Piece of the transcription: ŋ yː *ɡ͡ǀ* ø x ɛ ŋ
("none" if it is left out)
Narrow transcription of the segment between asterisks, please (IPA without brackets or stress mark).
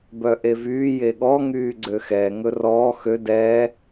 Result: ɡ͡ǀ